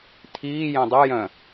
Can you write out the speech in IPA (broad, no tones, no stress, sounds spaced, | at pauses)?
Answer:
tʰ iː j ɛ̃ dˤ ɛ j œ̃